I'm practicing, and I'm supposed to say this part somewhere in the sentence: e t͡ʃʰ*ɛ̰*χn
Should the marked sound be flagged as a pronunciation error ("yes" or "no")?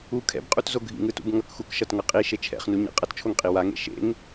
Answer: no